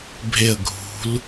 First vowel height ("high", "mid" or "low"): mid